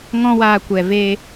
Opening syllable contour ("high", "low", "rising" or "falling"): high